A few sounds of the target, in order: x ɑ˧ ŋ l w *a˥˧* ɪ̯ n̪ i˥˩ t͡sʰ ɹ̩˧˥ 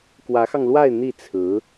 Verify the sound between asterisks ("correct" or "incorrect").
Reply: correct